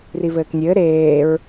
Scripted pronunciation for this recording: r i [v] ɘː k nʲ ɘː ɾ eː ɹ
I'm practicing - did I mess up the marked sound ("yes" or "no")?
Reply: no